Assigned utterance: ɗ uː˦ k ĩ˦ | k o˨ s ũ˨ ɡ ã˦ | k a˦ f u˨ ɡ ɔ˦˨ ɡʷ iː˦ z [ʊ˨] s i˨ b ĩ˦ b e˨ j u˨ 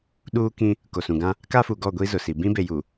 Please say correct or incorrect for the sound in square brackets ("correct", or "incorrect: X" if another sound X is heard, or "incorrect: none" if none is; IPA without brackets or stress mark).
correct